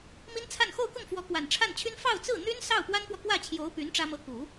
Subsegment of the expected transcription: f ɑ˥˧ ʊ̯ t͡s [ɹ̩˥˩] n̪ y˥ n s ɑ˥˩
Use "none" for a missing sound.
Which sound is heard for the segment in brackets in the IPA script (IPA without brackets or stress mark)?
ɹ̩˥˩